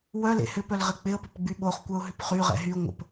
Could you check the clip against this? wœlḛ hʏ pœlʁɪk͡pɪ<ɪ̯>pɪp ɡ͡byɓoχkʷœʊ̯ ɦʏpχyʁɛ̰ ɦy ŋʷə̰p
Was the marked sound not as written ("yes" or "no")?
yes